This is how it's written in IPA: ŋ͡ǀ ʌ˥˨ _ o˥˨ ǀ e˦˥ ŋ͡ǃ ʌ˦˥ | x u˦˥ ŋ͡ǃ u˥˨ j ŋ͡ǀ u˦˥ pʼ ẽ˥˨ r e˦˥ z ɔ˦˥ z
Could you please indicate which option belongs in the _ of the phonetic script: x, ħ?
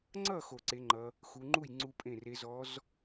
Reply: x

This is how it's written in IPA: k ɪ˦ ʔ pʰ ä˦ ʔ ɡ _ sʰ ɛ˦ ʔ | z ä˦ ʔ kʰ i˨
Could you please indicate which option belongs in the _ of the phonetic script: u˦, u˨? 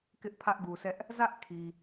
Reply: u˨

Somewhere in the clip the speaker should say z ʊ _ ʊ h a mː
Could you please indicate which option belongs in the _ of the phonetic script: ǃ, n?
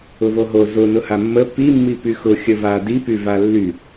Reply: n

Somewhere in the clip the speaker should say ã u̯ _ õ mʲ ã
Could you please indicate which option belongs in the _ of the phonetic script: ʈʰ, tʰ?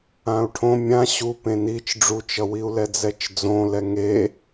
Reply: ʈʰ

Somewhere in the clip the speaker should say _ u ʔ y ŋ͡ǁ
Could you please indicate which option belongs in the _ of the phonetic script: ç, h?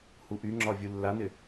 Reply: h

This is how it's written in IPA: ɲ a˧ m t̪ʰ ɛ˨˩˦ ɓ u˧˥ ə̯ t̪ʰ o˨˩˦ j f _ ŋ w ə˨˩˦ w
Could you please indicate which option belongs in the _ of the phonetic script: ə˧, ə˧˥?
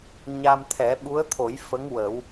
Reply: ə˧˥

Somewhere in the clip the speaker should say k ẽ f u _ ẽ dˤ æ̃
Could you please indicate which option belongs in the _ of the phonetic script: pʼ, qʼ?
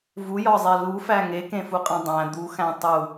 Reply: qʼ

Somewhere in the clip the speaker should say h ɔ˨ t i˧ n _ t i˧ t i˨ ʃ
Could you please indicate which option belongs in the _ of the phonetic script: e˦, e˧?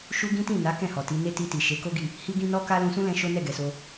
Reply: e˦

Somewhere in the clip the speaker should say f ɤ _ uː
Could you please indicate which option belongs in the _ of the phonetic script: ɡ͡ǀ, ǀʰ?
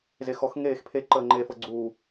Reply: ɡ͡ǀ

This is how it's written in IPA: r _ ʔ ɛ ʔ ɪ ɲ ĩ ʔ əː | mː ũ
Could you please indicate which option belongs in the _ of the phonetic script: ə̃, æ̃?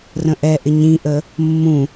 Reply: ə̃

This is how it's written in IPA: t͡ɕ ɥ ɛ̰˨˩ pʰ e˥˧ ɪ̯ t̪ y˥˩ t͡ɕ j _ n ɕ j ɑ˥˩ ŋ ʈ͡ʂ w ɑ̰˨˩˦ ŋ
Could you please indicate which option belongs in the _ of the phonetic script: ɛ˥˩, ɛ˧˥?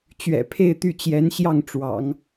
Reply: ɛ˧˥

